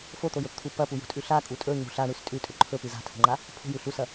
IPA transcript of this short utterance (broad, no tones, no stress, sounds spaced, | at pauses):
f o t̪ o j ɵ p t̪ʰ u p ɐ p u j ṳ tʼ ʉ ɬ a kʼ u tʼ ɵ ɲ ṳ ɬ a ɳ ʉ s tʼ ʉ tʼ ɵ ǃʰ ɵ p ɨ z a̤ tʰ o̤ ŋ͡ǃ a | pʰ o̤ j ʉ ɬ u s ɐ